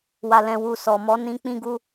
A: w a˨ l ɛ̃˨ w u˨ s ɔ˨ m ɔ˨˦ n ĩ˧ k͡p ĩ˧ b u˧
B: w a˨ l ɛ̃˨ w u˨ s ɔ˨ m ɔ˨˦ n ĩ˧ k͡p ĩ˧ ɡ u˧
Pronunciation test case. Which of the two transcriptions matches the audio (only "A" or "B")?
B